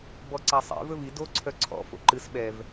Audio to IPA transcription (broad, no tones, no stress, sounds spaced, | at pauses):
b ɔ ǀ a sˤ ḛ v ɵ v i d o ǀʰ œ ǀʰ ɔ̰ f o̰ ǃ ɨ s ɓ ɛ v